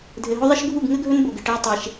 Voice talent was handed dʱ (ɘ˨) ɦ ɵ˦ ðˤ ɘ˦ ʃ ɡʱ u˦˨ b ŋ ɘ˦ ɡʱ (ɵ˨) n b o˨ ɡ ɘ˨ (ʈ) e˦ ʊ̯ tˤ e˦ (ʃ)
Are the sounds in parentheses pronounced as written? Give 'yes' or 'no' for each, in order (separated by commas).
yes, no, yes, yes